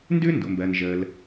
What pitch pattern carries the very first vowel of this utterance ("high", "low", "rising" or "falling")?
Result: high